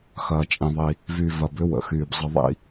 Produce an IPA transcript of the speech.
xɐː˧t͡ʃʼĩ˧ðˤi˧ | vy˧vɐ˧bʏ˦wə̰˨ xyː˨bzˤə˧ðˤḭ˦

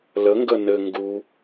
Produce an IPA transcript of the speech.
ləŋɡə nɘ ŋɡu

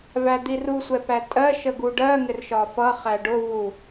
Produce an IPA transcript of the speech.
væd̪iru sʷɛpætʼɜ ʃəɡuɖɜ ŋɪrʃɒfʌ χæɖʊ vu

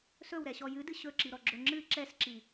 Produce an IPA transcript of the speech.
sɵwɾɛɕɔ jɨdɨ ɕɵǁiɾɔɡ͡ǁɵ ŋ͡ǁɨ ǁɛsǁi

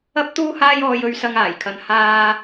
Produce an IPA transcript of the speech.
ɐ˥p̚t̪uː˥haː˥jɔː˧j ɵ˧ɥsɐ˧ŋaː˨˩jkʰɐ˨n haː˧

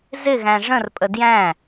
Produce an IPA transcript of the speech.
zɪɣæ̃ ʐə̃rpʼə djæ̃

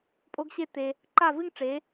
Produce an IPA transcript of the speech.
pʼo˦ɡɕe˦tːe˧ | ǃa˦˨vɨ˦ŋʈ͡ʂe˨˦

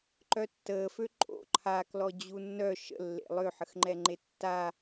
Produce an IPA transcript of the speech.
ǃœtːəːfø ǃʼo̰ ǃʰaklɔ d͡ʑunːœ ʃə̰lːḛ lˠøħəxŋ͡ǃɛŋ͡ǃe tːa

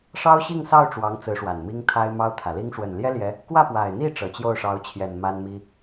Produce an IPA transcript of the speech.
ʂɑ˥ʊ̯ɕi˥˧ŋsɑ˥˩ʊ̯ ʈ͡ʂwɑ˧˥ŋt͡sɹ̩˧˥ʂwa˨˩n mi˥ŋt̪ʰa˥ɪ̯mɑ˥ʊ̯ t̪ʰä˨˩li˥ŋ ʂwə˨˩nljɛ˥ljɛ˧˥ | kwä˥˩pwa˨˩ɪ̯n̪i˥˩ ʈ͡ʂɤ˨˩t͡ɕjo˥˩ʊ̯ʂɑ˧˥ʊ̯t͡ɕʰjɛ˨˩n ma˥nmi˥

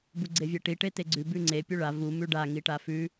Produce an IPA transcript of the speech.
buɡ͡ǀevʲeʈi ʈeteɡ͡ǀʉ bʉŋ͡ǀe pʲuɭa vu mʉɖa ŋiʈafʉ

